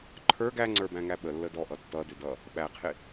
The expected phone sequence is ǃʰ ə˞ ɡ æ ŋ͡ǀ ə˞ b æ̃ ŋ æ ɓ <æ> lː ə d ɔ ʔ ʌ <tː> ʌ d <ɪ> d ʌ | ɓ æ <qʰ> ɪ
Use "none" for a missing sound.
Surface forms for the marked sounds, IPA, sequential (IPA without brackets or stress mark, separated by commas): ə, tː, ɪ, qʰ